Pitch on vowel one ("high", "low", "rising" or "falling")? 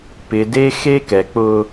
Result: low